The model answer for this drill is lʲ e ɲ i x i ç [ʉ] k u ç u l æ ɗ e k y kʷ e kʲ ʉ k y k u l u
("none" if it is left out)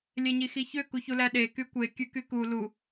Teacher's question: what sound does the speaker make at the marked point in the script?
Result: ø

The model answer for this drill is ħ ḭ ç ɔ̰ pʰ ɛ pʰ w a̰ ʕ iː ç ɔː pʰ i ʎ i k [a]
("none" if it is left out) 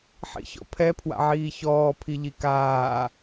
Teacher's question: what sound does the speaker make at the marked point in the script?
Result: aː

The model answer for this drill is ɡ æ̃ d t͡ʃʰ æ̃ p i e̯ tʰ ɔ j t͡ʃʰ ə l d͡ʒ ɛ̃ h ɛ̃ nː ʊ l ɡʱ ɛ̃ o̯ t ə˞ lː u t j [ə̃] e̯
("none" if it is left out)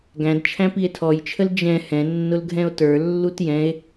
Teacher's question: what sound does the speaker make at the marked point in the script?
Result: ɛ̃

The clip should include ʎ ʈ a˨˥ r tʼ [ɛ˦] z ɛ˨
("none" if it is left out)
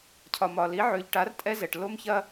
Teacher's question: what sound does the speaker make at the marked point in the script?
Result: ɛ˦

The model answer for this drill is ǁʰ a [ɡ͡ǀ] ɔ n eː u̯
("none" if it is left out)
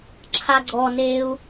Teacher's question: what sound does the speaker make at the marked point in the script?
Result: ɡ͡ǀ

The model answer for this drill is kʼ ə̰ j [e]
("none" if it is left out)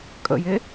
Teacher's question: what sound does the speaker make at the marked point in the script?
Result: e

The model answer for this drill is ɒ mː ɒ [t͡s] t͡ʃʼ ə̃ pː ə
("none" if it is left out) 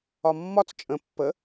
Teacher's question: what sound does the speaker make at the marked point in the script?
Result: t͡s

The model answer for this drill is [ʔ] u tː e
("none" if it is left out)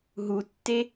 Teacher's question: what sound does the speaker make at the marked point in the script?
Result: ɦ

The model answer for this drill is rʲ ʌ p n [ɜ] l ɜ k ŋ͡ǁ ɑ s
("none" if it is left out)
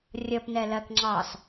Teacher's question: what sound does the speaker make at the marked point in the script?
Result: ɛ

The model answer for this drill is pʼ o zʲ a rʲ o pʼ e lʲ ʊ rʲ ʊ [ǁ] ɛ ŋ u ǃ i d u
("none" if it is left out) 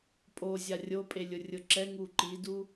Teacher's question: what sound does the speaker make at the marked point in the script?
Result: ǁ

